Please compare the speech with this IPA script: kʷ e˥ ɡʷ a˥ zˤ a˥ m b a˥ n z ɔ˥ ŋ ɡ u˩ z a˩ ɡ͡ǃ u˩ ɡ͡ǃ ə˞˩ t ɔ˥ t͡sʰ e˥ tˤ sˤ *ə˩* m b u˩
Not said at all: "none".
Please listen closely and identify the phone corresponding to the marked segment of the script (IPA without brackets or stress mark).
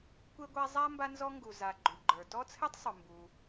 ʊ˩